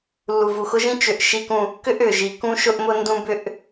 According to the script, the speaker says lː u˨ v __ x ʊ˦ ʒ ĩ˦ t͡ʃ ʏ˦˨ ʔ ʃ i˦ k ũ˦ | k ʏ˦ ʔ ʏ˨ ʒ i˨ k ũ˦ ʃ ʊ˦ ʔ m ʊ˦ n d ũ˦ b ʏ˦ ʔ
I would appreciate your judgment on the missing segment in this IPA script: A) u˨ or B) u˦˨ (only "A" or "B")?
A